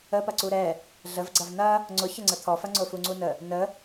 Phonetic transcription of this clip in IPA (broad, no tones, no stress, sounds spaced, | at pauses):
ə p ɐ ǀ u ɾ ɛ | ɮ ə v ɡ͡ǀ ɐ v n̪ ɐ | ŋ͡ǀ ʊ ç ə ŋ͡ǀ ə t̪ʰ ɔ f ɐ ŋ͡ǀ ʊ f u ŋ͡ǀ u n ə | n ə